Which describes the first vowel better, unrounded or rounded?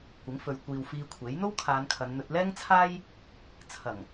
unrounded